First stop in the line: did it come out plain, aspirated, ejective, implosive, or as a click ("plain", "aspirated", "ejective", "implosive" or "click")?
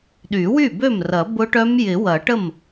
implosive